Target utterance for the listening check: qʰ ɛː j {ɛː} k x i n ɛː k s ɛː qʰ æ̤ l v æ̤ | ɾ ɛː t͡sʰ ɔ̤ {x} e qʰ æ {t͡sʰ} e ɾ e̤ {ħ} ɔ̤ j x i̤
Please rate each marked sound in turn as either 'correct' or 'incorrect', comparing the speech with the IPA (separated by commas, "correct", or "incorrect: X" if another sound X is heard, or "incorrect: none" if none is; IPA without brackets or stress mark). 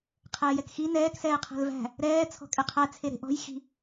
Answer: incorrect: ɛ, incorrect: kʼ, correct, incorrect: ʔ